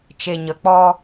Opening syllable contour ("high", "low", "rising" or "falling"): low